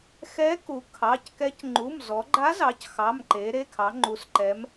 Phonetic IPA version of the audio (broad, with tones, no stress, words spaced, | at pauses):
xɛ˧˥ku˩˧ kʰɑ˩˧˩ckɛ˧˥c ŋ͡ǃu˩˧˩mzɔ˩˧ɡ͡ǃa˧˥zɑ˩˧c xɑ˩˧˩mǃe˩˧ ɾe˩˧˩kʰɑ˩˧ŋ͡ǃu˩˧sǃɛ˩˧m